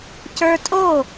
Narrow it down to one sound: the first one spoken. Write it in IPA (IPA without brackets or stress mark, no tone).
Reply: c